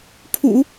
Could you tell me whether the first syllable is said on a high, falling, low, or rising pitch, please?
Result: low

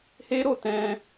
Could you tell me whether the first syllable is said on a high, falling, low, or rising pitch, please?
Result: high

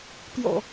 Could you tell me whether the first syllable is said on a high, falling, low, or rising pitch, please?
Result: low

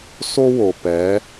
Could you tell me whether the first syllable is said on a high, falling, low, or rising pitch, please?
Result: high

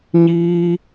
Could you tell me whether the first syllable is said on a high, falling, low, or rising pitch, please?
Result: high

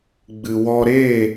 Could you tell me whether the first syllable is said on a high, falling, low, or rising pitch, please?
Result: low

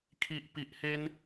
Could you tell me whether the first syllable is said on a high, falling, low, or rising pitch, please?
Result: low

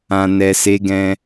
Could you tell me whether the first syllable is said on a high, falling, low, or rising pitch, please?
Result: low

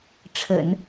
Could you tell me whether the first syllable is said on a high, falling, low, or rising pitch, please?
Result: low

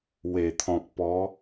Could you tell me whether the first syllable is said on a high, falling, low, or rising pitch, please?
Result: low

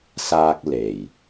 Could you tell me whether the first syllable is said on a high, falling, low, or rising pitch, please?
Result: high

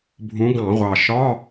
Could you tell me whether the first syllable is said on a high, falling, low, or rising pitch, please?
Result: rising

